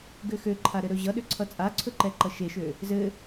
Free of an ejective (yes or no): no